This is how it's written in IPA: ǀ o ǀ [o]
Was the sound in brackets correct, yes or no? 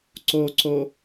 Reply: yes